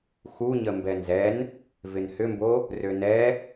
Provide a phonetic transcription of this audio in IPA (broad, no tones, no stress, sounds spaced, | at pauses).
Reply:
x u ɲ ə m b ɛ n z ɛ n | v ɪ n h ʏ m b o | r ø n ɛ